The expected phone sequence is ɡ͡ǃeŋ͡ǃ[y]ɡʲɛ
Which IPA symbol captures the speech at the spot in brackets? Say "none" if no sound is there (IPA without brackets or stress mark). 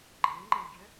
e